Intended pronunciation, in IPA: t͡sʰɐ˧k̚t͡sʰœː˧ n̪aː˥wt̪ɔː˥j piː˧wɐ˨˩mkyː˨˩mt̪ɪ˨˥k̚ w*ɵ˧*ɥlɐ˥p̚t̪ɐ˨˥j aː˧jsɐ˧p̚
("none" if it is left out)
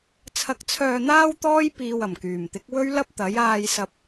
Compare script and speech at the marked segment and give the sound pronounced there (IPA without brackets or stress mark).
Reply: ɵ˥